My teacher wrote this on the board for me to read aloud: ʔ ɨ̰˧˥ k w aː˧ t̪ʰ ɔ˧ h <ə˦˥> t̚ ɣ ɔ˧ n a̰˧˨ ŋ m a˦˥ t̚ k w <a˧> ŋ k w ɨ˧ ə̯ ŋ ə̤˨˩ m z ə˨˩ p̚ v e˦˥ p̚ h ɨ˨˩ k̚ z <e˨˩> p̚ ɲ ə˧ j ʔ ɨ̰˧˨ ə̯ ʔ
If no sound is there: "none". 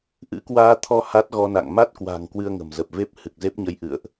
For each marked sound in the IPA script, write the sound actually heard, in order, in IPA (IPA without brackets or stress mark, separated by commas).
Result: a˦˥, a̤˨˩, e˦˥